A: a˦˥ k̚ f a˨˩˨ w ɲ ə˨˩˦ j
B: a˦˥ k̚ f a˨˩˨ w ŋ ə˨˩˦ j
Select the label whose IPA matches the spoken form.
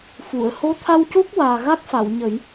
A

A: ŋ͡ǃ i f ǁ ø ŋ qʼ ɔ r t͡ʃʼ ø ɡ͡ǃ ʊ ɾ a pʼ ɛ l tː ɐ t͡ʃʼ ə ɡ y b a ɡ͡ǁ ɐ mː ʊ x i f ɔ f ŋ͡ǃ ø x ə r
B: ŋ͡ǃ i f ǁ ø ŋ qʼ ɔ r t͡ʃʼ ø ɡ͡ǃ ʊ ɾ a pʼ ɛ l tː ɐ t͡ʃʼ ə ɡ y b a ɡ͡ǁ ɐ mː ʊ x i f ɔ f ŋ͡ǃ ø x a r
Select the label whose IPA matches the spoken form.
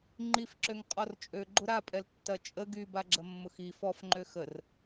A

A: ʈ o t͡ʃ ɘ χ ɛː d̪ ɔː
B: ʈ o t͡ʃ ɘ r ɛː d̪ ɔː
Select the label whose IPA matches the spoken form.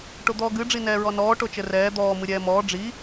B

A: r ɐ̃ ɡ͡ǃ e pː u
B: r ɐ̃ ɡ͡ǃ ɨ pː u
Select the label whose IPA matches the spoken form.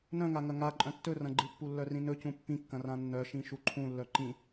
B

